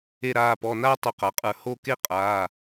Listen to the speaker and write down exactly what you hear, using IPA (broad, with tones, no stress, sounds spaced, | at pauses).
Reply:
e˥˧ ɾ aː˧˥˧ p ɔ˧˥˧ n aː˥ tˤ o˧˩ q a˩˧ qʼ ə˞˧˩ h o˥˧ k e˥ qʼ aː˧˥˧